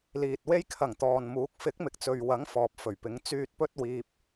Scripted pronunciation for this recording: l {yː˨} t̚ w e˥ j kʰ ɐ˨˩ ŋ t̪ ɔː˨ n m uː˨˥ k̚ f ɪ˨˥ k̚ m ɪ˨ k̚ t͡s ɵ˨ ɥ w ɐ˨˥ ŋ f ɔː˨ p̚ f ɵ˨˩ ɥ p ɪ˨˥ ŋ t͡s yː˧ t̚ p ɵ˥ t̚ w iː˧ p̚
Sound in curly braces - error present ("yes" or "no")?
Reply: yes